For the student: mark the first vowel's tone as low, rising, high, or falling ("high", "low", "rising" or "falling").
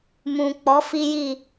low